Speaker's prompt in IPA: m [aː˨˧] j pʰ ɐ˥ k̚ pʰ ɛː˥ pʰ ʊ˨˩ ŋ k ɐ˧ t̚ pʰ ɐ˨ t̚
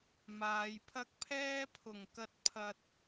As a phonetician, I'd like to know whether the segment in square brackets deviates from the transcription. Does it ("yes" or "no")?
no